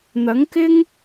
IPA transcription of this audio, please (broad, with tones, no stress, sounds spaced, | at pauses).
n̪ ɐ˨˥ ŋ k ɪ˥ ŋ